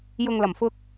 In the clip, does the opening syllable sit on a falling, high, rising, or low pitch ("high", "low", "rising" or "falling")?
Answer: low